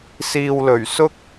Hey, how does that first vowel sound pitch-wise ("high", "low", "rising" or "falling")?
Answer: low